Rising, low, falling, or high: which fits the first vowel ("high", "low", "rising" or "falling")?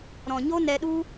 low